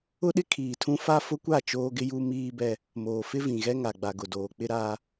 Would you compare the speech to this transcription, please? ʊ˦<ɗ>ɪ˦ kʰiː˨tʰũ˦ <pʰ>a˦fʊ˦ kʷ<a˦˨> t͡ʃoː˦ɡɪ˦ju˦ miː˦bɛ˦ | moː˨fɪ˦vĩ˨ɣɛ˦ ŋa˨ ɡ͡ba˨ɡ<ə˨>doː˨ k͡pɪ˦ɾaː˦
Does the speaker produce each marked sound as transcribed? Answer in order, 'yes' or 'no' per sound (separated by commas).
yes, no, yes, no